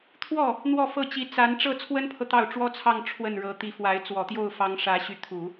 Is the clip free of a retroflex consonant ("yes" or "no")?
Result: no